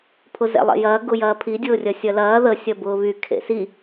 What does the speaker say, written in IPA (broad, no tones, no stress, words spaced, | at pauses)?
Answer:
pʰʊzɛ̰lˠḛjɐː ɡʊjɐːpʰi dʲʊːrʲɐsʲɐlɐː ðə sʲɐbʊːβy kʰḛsi